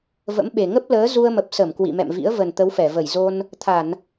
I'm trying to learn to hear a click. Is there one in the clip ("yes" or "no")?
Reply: no